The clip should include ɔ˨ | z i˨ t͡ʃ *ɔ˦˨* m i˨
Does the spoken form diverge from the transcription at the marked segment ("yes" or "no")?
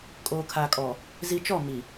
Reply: no